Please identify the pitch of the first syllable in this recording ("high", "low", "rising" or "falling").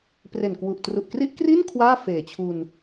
low